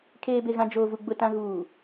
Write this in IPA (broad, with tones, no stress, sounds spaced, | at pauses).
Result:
kʰ eː˨ b e˨ ɣ ã˨ d͡ʒ oː˨ v u˨ ɡ͡b ʊ˨ t ã˨ ɣ uː˨